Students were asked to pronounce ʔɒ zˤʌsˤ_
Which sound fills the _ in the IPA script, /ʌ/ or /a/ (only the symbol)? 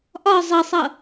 ʌ